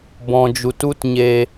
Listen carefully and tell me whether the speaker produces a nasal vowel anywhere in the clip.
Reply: yes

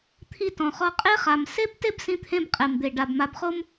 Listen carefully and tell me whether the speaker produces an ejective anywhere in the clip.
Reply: yes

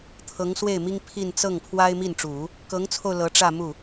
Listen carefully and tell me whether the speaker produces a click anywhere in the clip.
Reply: no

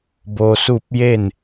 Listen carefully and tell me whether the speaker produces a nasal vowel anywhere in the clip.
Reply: no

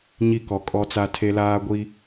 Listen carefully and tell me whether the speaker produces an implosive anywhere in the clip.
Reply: no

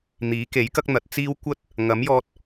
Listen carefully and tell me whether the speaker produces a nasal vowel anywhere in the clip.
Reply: no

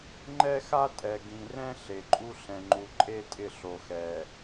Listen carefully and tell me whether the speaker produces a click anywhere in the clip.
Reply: yes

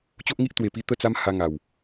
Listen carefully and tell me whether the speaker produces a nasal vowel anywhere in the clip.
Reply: no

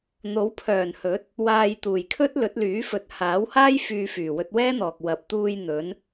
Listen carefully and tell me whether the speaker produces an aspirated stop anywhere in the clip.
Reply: yes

